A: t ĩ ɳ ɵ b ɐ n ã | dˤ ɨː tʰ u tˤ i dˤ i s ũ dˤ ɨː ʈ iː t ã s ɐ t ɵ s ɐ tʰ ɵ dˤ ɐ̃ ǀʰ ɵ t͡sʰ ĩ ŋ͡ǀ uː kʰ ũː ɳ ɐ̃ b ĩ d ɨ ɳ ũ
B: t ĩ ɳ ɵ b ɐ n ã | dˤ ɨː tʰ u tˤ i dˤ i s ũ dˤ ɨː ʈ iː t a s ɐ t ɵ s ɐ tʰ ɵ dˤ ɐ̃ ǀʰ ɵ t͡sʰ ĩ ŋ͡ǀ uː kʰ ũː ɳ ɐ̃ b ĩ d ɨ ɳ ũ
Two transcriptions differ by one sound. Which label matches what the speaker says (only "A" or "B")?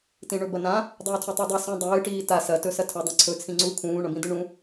B